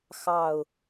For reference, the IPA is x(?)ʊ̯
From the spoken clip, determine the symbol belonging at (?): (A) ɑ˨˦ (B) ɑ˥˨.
B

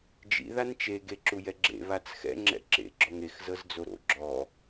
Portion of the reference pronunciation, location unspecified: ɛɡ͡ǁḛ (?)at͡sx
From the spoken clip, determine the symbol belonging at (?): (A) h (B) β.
B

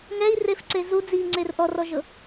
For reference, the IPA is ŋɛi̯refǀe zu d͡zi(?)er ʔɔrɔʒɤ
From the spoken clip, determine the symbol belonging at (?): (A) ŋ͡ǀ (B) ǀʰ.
A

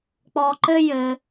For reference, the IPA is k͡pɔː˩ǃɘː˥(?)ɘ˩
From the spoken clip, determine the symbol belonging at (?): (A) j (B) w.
A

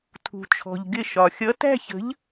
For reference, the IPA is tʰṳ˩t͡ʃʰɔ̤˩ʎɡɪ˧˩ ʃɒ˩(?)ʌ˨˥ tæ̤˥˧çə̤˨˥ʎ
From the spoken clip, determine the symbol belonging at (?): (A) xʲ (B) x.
A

